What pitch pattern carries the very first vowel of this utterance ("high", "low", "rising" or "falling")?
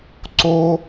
high